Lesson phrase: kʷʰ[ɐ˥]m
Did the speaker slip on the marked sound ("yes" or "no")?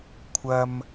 yes